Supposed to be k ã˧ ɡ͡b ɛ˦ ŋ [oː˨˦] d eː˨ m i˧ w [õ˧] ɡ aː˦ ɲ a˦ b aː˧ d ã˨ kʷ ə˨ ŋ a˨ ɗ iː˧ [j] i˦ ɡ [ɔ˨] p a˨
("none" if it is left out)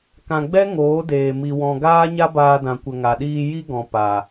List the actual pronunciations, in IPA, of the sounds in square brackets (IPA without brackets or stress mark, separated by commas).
oː˨˦, ɔ̃˧, j, ɔ̃˨